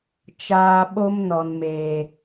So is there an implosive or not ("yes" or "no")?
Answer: yes